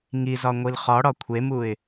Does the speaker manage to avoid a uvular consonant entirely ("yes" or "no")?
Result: no